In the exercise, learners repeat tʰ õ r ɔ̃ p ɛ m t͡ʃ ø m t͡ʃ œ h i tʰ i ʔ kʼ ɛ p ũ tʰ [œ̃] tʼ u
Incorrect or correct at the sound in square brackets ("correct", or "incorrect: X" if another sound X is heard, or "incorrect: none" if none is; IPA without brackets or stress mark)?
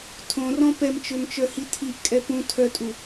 incorrect: œ